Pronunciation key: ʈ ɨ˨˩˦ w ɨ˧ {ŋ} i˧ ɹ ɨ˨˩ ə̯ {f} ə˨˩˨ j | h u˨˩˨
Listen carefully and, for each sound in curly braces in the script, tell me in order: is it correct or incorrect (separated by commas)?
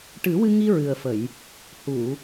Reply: correct, correct